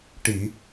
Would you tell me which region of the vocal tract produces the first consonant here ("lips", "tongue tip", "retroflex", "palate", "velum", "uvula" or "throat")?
retroflex